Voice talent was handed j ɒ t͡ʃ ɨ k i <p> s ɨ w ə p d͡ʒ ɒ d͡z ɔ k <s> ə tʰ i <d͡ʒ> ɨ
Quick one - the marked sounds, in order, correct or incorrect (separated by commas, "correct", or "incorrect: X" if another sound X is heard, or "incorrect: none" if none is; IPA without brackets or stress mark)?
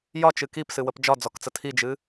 correct, incorrect: t͡s, correct